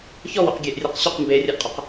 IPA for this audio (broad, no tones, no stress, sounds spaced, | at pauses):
ç ɔ w ɔ̰ q ɡʲ e ʔ rʲ e q ɕ ʊ q m b e rʲ a ʔ qʼ ɔ q